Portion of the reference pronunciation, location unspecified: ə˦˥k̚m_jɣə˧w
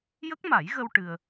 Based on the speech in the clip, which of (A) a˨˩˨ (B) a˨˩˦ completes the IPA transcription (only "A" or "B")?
B